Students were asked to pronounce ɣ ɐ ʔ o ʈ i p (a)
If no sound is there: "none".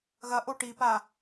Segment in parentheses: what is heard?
a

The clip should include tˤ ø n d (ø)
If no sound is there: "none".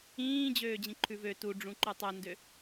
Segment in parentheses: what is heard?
ø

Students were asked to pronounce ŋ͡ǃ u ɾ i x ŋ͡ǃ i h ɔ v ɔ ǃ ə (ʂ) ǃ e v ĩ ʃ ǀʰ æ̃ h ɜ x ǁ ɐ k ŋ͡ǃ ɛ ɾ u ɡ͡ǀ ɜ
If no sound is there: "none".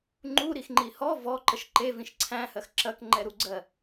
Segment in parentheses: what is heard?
ʃ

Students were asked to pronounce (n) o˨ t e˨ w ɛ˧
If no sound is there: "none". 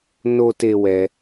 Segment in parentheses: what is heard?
n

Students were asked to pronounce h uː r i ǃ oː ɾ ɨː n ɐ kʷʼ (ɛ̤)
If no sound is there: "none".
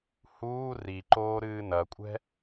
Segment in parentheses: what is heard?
ɛ̤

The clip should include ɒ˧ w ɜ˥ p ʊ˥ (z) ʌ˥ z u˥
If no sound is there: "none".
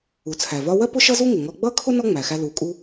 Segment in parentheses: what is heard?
ʃ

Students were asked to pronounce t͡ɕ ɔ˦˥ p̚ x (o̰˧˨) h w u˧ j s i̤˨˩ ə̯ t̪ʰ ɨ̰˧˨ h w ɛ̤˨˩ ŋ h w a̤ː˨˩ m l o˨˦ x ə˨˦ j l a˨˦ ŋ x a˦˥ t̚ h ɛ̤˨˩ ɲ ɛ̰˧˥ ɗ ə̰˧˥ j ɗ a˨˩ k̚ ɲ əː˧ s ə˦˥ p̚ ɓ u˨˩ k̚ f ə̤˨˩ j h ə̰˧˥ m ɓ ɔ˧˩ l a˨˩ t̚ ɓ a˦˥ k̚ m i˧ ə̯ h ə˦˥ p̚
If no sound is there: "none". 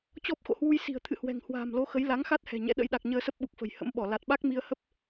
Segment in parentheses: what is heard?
o̰˧˨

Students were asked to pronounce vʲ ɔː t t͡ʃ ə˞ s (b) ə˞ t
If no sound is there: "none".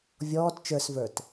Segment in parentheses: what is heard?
v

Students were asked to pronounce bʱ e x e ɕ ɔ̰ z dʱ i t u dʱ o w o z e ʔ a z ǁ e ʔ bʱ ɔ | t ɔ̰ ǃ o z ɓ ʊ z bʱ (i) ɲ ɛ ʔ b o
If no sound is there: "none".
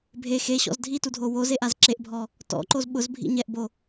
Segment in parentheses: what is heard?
ḭ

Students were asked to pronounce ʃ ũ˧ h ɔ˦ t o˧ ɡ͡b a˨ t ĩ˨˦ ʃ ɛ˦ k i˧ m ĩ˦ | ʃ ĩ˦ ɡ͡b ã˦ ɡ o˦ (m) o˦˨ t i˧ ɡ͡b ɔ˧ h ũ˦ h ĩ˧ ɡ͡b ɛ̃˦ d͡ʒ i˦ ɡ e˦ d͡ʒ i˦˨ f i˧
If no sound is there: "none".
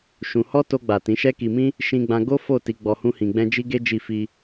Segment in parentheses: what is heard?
f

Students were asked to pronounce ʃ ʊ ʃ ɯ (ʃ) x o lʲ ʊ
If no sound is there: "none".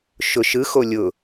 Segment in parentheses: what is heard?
none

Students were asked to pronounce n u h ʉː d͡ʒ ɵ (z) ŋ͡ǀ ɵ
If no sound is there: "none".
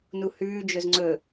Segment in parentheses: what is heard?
z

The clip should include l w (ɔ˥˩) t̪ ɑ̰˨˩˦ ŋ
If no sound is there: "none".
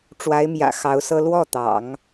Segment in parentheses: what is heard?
ɔ˥˩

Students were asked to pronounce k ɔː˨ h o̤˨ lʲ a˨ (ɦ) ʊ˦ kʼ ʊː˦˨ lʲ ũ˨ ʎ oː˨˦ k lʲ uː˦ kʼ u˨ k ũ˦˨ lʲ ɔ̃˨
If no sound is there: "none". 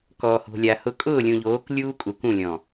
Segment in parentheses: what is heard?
h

